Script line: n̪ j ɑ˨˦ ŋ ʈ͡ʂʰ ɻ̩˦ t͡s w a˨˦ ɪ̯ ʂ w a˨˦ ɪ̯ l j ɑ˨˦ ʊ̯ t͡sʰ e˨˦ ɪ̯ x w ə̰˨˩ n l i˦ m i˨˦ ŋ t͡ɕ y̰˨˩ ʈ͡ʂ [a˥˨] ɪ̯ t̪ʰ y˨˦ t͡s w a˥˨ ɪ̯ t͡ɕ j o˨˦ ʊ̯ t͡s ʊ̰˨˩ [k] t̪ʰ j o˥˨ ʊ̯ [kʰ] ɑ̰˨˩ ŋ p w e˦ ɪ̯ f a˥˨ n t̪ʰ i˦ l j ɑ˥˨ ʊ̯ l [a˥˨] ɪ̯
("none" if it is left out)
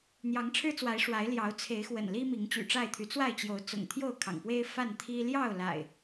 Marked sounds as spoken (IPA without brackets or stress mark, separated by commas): a˥˨, ŋ, kʰ, a̰˨˩